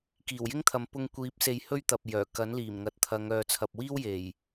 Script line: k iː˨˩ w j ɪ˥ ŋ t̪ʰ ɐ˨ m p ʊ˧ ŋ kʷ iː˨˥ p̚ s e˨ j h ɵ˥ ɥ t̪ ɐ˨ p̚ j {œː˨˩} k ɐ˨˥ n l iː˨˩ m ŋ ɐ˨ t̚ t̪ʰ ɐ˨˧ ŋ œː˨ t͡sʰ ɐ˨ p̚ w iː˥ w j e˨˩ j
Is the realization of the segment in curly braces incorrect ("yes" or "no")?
no